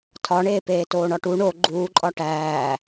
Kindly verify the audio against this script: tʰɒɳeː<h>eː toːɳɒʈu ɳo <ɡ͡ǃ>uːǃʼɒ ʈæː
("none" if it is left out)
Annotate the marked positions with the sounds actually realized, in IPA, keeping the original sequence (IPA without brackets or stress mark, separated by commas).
p, ɡ͡ǃ